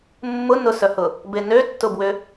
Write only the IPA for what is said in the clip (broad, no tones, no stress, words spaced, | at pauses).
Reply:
mːʊ nʊsœhʊ | benø tːʊbwʏ